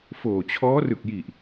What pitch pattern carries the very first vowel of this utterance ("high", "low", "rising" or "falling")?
low